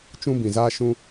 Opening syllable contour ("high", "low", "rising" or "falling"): high